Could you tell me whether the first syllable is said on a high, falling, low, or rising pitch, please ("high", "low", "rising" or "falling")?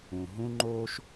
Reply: low